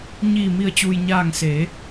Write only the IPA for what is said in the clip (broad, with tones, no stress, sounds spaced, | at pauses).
ɲ iː˧˩ m i˧˩ ə̯ t͡ɕ uː˩ j ɲ aː˧˩ ŋ s eː˩˧